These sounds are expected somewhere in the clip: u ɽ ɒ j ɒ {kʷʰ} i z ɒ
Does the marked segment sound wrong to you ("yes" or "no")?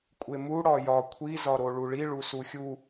no